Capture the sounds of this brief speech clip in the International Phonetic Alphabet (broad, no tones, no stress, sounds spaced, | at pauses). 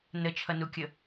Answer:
n ə t͡ʃʰ ʌ n u kʲ ə